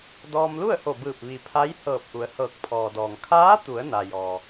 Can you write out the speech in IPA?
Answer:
d ɔː˧ m l u˥˨ ə̯ h o˧˩ b ɯː˧˩ p̚ ʋ i˩ pʰ a˧˥ j h ɤː˧˩ p̚ ʔ u˩˧ ə̯ h ɤː˧˩ k̚ pʰ ɔː˩ d ɔː˩ ŋ kʰ aː˧˥ t̪ u˩˧ ə̯ n a˩ j ɔː˩

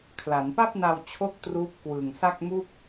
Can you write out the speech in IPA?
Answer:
kʰ l a˩˦ n p a˥˩ p̚ n a˧ w t͡ɕʰ o˦˥ k̚ t r uː˦˥ p̚ k w ɯː˨˩ ŋ s a˥˩ k̚ m u˥˩ k̚

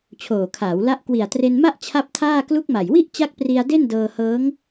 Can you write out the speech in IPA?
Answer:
t͡ɕʰ oː˨˩ kʰ aː˩˦ w l a˦˥ ʔ k w i˨˩ a̯ t r e˧ n m a˥˩ ʔ t͡ɕʰ a˥˩ p̚ tʰ aː˥˩ k l u˦˥ k̚ m a˨˩ j w i˥˩ ʔ t͡ɕ a˦˥ k̚ p r i˧ a̯ d e˥˩ n d ɤː˧ h ɤː˦˥ ŋ

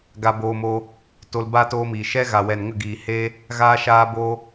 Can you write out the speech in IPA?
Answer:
ɡ a˧ b oː˧ m o˧ | t o˧ l b a˦ t oː˧ m i˨ ʃ ɛ˦ ɣ a˨ w ɛ˨ n ŋ ə˦˨ ɡ iː˨ h eː˦ | ɣ aː˦ ʃ aː˦ b o˦

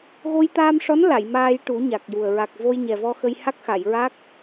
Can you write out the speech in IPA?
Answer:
ɣ o˧ j t̪ aː˧ m ʂ ɔ˧˥ n l a˨˩˨ j m aː˧ j ʈ u˨˩˦ ɲ a˨˩ k̚ j u˨˩ ə̯ ɹ a˨˩ k̚ v o˧ j ɲ ɛ˨˩ v ɔ˧ x ə˧ j h a˦˥ k̚ x a˨˩˨ j ɹ a˦˥ k̚

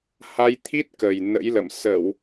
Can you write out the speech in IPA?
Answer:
h a˧ j t̪ʰ i˦˥ t̚ k ə˨˩ j n ə̰˧˥ j l ə̰˧˨ m s ə˧˩˨ w

